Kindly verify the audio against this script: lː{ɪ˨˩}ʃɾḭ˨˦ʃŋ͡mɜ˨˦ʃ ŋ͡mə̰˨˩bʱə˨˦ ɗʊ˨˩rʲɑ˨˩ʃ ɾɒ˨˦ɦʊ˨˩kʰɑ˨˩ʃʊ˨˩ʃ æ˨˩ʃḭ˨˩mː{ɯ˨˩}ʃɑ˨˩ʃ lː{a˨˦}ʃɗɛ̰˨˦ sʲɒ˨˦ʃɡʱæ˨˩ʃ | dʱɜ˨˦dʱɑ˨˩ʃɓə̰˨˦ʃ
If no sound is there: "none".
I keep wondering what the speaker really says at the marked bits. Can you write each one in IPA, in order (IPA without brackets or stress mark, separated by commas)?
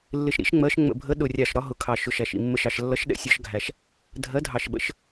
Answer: ɪ˨˩, ə˨˩, ʌ˨˦